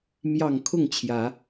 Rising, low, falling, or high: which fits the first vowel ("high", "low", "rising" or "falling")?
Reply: low